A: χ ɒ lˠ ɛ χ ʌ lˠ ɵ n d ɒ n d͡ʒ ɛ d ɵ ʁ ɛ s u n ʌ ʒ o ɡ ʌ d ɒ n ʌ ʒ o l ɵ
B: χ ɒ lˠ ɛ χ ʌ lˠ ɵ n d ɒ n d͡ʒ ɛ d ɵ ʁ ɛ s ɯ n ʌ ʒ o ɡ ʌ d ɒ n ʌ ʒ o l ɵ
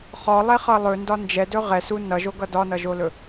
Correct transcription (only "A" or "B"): A